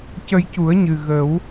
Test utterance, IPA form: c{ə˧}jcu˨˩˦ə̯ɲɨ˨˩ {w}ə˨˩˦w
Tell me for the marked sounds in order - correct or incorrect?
correct, incorrect: ɣ

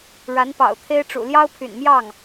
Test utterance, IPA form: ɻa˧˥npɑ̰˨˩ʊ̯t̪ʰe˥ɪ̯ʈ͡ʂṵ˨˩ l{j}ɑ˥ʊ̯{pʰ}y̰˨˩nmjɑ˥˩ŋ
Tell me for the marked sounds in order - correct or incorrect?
correct, correct

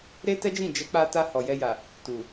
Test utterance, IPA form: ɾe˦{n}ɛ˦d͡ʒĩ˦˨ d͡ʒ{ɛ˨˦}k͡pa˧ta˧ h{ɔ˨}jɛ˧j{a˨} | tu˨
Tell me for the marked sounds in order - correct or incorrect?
incorrect: t, correct, correct, correct

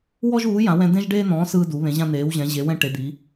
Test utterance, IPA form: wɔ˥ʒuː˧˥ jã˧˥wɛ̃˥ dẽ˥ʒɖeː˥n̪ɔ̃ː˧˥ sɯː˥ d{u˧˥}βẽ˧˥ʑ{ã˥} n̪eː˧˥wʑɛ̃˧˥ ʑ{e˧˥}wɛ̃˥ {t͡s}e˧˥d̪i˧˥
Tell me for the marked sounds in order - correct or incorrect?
correct, correct, correct, incorrect: ʈ

